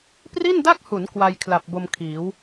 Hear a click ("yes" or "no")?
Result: no